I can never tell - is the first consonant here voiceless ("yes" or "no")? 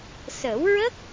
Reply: yes